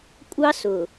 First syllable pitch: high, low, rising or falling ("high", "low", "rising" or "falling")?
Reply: high